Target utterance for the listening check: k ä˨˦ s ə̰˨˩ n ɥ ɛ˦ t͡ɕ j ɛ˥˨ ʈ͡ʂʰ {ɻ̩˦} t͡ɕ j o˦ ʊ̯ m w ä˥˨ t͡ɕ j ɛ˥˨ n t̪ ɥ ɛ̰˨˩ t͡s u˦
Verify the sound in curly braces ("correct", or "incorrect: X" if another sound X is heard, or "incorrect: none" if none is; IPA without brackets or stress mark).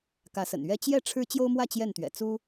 correct